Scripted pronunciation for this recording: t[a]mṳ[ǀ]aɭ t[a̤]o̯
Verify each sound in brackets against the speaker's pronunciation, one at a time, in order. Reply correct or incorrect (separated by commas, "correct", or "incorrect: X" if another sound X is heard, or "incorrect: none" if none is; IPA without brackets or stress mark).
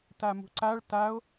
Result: correct, correct, incorrect: a